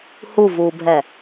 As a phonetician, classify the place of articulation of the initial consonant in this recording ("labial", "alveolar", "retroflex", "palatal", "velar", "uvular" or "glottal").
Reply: glottal